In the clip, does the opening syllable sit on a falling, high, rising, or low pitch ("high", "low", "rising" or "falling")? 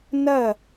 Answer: falling